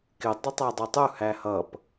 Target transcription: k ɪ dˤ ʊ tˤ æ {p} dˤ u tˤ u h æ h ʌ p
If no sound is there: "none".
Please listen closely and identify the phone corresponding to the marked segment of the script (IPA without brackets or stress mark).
none